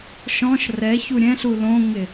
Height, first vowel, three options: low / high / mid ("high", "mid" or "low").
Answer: mid